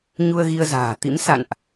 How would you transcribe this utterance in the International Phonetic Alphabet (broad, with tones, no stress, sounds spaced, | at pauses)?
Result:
ɲ u˧ ə̯ ɣ i˧ ə̯ z a̤ː˨˩ t̪ ḭ˧˥ m s a̰˧˨ n ʔ